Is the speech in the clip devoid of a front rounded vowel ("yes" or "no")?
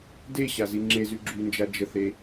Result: no